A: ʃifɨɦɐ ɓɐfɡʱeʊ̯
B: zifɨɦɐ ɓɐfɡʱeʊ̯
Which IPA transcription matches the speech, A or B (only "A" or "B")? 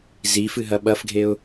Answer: B